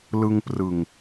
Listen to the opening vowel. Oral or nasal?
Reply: oral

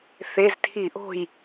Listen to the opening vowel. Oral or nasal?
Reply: oral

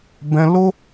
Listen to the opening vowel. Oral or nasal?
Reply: nasal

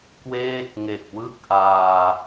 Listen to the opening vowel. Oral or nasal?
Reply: oral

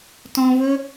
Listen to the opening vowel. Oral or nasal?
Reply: nasal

